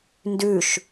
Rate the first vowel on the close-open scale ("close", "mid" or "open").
close